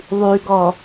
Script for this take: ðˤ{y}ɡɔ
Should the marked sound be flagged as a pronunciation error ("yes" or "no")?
no